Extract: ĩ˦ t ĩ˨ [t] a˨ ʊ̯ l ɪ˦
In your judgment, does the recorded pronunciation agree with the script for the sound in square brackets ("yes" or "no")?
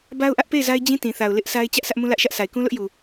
no